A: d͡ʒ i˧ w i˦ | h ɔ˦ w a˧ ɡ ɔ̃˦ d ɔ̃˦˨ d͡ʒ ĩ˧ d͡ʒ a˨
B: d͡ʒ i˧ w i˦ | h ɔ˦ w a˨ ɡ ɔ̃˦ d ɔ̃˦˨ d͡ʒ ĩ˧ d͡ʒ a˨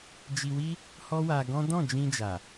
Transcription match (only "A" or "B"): A